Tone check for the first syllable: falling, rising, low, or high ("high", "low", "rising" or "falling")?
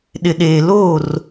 low